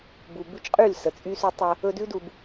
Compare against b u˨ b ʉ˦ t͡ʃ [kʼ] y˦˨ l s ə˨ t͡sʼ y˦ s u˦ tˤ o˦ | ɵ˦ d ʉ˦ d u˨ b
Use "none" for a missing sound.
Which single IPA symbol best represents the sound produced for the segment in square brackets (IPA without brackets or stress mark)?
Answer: qʼ